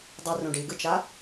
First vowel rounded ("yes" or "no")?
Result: yes